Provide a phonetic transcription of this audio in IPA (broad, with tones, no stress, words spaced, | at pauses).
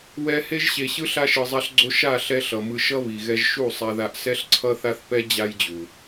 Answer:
wɛ˧ he˧ʒɕe˨ɕɯ˧ ɬa˧ʃɯ˨zˤa˧ɬɡ͡ǀo˧ ʃa˦˨ɬɛ˧ɬʌ˨ mɯ˧ʃʌ˦βi˨ɣɛ˧ʒ ʃu˦˨sˤa˧ða˧ʔ sɛ˧ɬǀʰʌ˧θa˧θpɛ˧ d͡ʑa˦jd͡ʑu˨